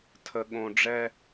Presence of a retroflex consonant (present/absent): present